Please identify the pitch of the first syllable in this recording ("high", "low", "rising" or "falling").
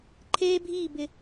high